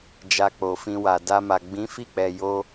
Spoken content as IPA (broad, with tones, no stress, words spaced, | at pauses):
d͡ʒa˧k͡po˨fĩ˧wa˨ da˧ma˨ ɡ͡bĩ˨˦fi˦˨k͡pɛ˨ jo˧